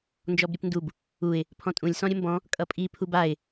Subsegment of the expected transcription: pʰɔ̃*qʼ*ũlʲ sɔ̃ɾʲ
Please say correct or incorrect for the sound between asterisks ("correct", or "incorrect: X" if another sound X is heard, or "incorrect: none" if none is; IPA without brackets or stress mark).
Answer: incorrect: tʼ